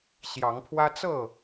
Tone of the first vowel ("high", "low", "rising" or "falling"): rising